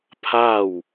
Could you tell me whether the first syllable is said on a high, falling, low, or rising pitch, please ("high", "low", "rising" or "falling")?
falling